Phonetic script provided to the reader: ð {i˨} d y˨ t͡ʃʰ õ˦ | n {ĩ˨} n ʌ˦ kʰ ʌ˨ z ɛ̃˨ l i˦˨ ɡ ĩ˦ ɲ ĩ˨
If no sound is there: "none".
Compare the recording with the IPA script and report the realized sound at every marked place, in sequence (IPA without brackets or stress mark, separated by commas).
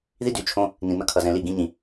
i˦, ĩ˨